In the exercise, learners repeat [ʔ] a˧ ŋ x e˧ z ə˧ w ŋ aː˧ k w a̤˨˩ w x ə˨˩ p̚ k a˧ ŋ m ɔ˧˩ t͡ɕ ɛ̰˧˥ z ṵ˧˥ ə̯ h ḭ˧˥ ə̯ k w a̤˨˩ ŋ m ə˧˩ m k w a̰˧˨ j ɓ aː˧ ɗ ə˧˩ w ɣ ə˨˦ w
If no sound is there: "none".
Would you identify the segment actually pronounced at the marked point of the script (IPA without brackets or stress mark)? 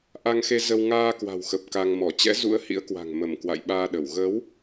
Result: ʔ